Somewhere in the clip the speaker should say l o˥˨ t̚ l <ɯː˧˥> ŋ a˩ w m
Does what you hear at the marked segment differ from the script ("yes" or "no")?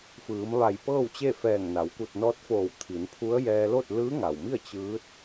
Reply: no